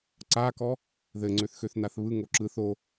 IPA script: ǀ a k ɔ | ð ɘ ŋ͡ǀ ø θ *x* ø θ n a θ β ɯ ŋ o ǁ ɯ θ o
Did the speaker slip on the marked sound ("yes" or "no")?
no